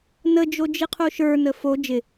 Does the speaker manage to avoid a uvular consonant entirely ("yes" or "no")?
no